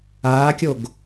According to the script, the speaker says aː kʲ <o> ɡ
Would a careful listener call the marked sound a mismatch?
no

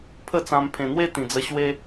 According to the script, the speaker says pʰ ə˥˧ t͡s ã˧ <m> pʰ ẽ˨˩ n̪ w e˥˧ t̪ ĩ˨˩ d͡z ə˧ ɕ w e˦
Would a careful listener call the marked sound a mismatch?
no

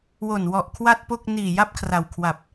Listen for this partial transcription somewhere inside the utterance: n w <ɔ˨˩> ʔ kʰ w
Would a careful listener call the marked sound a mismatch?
no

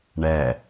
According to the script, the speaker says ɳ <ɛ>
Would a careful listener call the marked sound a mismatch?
no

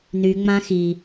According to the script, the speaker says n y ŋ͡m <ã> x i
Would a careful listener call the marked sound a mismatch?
no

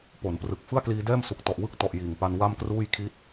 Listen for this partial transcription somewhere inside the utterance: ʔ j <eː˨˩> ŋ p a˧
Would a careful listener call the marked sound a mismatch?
yes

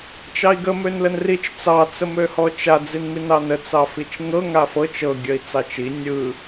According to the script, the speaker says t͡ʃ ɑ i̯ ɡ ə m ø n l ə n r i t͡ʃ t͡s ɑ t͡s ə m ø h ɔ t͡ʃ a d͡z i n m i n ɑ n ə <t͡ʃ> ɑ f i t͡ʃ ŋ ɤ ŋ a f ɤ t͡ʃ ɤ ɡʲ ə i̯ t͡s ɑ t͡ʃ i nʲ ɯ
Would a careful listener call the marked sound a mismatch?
yes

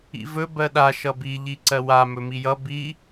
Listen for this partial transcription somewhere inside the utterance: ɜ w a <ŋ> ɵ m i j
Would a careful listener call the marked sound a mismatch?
yes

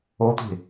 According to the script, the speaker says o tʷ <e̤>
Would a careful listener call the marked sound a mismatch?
no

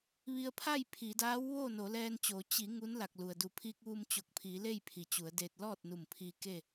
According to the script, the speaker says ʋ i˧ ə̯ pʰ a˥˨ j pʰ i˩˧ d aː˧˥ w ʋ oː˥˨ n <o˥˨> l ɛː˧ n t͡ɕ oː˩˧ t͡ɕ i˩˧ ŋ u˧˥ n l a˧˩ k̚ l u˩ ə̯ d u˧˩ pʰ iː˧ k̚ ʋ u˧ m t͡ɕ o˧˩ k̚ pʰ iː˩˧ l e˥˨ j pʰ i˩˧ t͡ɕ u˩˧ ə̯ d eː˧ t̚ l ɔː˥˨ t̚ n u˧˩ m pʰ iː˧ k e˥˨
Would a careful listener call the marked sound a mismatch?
yes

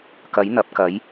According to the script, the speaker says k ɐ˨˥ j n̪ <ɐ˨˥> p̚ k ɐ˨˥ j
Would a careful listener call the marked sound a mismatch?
no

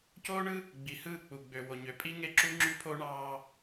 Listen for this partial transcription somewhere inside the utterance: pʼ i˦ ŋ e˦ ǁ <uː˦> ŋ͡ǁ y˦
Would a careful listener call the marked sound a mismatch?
yes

